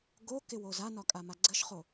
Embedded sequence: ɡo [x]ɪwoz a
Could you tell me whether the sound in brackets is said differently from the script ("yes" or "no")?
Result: yes